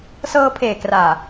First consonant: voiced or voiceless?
voiceless